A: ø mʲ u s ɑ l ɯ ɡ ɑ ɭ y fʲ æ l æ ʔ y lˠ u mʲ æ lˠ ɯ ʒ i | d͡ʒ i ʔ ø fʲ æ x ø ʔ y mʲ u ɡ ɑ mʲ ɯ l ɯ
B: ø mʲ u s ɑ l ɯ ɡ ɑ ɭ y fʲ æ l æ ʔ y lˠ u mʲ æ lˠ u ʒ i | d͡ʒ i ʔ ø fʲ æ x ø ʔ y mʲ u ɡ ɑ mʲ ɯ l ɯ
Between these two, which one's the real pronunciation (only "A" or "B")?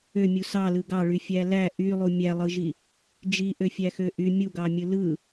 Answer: A